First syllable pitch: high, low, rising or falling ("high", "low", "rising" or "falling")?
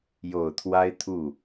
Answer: low